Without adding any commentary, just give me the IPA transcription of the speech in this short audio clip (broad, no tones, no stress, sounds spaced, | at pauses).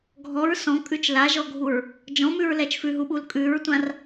ɡʱ ɔ ɹ s ɔ̃ kʼ ʉ t͡ʃ l a ʒ ɔ ɡʱ u ɹ | d͡ʒ ɔ̃ m ʉ ɹ l ɛ t͡ʃ f ʉ ɦ u ɓ u l kʼ ʉ ɹ tʷ ã r